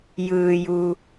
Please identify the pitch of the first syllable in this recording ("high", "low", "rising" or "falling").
low